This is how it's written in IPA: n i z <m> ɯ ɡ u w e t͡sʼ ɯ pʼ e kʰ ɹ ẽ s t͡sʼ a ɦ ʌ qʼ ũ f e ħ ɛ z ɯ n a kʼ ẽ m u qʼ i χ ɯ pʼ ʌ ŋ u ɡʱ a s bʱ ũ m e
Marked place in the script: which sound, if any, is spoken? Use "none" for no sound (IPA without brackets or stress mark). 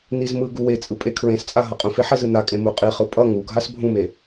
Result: m